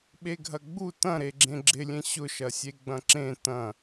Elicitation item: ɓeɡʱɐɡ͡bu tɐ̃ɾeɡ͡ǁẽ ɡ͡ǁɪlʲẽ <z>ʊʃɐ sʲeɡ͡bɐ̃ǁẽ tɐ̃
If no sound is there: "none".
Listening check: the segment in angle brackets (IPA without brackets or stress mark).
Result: ɕ